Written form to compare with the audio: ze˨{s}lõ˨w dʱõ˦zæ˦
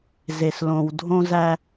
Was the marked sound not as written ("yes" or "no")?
no